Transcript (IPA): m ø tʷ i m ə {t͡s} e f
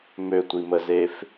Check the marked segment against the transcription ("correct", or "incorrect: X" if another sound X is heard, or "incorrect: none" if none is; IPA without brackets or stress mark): incorrect: z